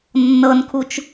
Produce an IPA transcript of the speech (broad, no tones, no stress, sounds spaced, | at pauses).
nː ɤ n kʰ u t͡ʃ